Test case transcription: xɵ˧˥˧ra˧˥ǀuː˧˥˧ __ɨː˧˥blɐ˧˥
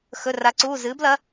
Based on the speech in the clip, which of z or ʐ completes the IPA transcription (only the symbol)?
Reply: z